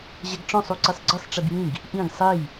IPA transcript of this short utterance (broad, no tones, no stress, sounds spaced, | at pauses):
ʑ ɛ ɡ ʈ͡ʂ ɔ̃ sˤ u ǀ i sˤ ɡ͡ǀ ɨ sˤ ʈ͡ʂ i b j ĩ ɡ | ʔ ĩ ɡ sˤ e j